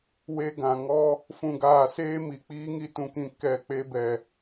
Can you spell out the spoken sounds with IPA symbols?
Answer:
we˧ɡã˨ŋɔ˦ | fũ˧ɡaː˧ seː˦mi˨ k͡piː˦ŋi˦tũ˧ kĩ˧ kɛ˦˨ k͡pe˧bɛ˨

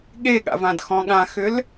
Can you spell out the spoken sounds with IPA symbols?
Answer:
ɠeɠa̰vãdxɔ̃ ɠãxʏl

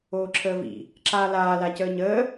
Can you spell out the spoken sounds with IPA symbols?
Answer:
oːǁʰəːvḭ | ǁaːlaː lacəːɲəː

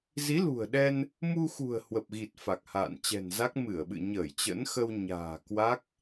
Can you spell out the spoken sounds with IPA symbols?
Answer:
zi˨˦lṳ˨˩ə̯ɗɛ˧n | mu˧xṳ˨˩ə̯ hwə˨˩p̚ɣi˨˩t̚ fa˨˩k̚ha̰ː˧˨nt͡ɕɛ̤˨˩nza˦˥k̚ mɨ˧˩ə̯ɓɨ̰˧˨ɲəː˧˩j t͡ɕə̰˧˥nxə˧wɲa̤ː˨˩ kwa˦˥k̚

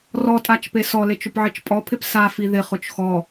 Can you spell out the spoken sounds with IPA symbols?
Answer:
rɔtʼat͡ʃpe sɔlet͡ʃʊpʕit͡ʃ pʼɔpʰɪp safi ðɪχʊt͡ʃ xɔ

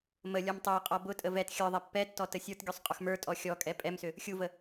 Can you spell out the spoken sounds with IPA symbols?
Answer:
mə lʲɔmtˤoə̯qʼɔ bʊtʼə vɛt xʲə˞ðˤɛ pːɛtːɔ təsʲə˞tɡʲusˤ qʼʊxmə˞tʼɔ xʲɔkʼɛ pʼɛmsʏ | xʲuvə

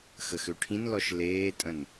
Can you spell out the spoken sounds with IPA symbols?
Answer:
xəxøʈʰĩnlɔʃ leːtʼə̃n

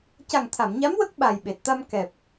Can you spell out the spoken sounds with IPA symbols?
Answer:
ca˨˩ŋt̪ʰa˨˩˨mɲa˧˥m wə˦˥k̚ ɓa˨˩jɓe˨˩t̚t̪a˧m kɛ˨˩p̚

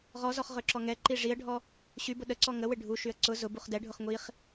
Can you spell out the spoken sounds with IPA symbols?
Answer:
ʁɔzɔχ ʁøǁɔŋɛǃi ʐiə̯ɖʱɔ | ɕybʊ ɗəǀɔ ŋəwɪ ɖʱuʃyə̯ ǀʊ zʊ buχdɛɖʱʊχ ŋʷiχ

